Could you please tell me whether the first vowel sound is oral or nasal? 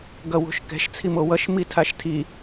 oral